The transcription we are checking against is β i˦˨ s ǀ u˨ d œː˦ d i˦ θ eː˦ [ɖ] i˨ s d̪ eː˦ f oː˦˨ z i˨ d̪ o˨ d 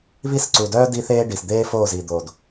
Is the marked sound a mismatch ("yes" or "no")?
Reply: no